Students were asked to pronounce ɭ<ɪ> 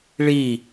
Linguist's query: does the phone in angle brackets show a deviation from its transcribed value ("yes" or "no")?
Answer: yes